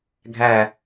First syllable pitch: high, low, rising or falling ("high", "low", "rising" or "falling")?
falling